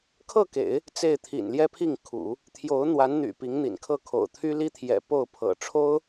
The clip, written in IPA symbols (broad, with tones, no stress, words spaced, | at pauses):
kʰɤ˥˩kḛ˨˩˦ɪ̯ | t͡se˥˩ɪ̯t̪ʰḭ˨˩n ljɛ˥pʰi˥˩ŋkʰṵ˨˩˦ | t̪ʰjo˧˥ʊ̯n̪wa˧˥nn̪y̰˨˩ pi˧˥ŋn̪ḭ˨˩nkʰɤ˥˩kʰo̰˨˩ʊ̯ t̪ʰy˥li˥t̪ʰjɛ̰˨˩ po˥˩ʊ̯ pʰɤ̰˨˩ʈ͡ʂʰo˥ʊ̯